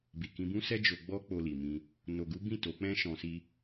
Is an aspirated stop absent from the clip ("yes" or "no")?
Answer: yes